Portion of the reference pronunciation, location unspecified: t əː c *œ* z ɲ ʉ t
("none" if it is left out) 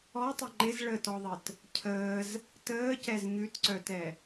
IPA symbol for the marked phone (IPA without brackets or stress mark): ɛ